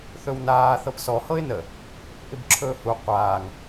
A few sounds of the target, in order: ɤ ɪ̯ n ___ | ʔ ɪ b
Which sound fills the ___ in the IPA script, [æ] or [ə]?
ə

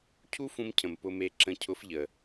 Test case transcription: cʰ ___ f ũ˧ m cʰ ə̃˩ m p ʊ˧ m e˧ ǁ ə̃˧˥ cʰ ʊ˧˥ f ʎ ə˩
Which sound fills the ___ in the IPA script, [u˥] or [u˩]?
u˥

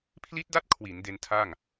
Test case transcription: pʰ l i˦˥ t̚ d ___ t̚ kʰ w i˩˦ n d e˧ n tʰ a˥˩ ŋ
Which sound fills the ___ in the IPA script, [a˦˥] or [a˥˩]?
a˦˥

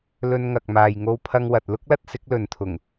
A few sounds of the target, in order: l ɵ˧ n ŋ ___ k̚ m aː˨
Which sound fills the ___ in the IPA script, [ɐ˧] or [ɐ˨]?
ɐ˨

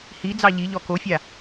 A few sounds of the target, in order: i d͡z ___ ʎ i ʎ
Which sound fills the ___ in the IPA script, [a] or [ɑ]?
ɑ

